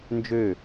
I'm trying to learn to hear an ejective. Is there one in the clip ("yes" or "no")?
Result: no